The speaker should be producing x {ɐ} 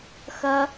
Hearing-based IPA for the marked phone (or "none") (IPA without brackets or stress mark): ɐ